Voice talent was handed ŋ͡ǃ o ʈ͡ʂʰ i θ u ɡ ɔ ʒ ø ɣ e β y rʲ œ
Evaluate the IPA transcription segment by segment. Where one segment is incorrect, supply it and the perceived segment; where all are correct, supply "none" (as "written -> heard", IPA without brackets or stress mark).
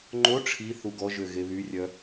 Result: none